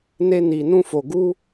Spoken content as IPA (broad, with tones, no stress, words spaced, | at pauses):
ne˦ni˧nũ˦fo˧ ɡu˦